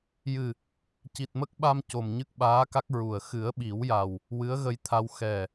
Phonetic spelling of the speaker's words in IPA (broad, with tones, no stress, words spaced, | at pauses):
jɨ˨˩ | ci˨˩t̚mə˦˥k̚ɓa˧m co˨˩mɲɨ˦˥k̚ɓaː˧˥ka˦˥k̚ ɹu˨˩ə̯ xɨ˨˩˦ə̯ɓi˨˩˦wja˨˩w | wɨ˧˥ə̯ɣə˧jt̪ʰa˧w xɛ˨˩